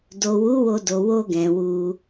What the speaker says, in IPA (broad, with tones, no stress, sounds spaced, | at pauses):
d o˨ w u˨˦ w o˧ d o˨ w o˧ ɡ ɛ̃˨ w u˧